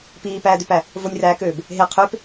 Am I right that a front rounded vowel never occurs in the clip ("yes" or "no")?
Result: no